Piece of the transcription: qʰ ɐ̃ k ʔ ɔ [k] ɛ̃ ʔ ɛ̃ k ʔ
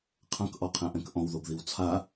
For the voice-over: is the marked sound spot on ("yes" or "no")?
no